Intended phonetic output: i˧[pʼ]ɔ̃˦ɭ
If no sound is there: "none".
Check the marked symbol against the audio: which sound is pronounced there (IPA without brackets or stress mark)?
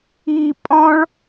pʼ